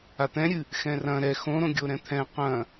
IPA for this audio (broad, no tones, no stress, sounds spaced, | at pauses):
a t̪ ɛ̃ ɾʲ ɨ | x ɛ̃ r ɐ̃ ɾ ɛ x õ ɾ õ ɡʲ o ɾ ɛ̃ t̪ʰ ɛ̃ q ɐ̃